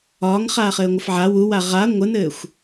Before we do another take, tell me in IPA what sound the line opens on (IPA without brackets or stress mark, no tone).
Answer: ɒː